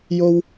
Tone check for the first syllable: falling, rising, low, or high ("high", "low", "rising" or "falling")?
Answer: low